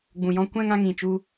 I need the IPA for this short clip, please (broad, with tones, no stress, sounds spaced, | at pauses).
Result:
ɡ͡b ũ˨ j ɔ̃˦ kʷ ɛ̃˧ ŋ ã˧ ŋ ĩ˨ t͡ʃ u˧